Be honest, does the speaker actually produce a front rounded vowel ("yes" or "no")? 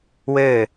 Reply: no